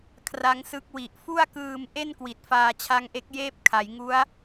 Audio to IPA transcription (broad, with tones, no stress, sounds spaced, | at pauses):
kʰ r a˦˥ ŋ s ɯ˦˥ k̚ w i˨˩ ʔ f u˥˩ a̯ k ɯː˧ m ʔ e˥˩ n k w i˨˩ t̚ f aː˧ t͡ɕʰ a˦˥ ŋ ʔ e˦˥ k̚ j eː˦˥ p̚ kʰ a˩˦ j ŋ u˦˥ a̯